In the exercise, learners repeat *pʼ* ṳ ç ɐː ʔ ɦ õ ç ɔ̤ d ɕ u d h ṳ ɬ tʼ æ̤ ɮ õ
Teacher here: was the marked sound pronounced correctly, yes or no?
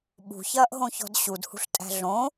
no